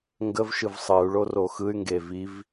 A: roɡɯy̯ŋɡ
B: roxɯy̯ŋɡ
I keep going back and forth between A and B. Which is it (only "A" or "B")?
B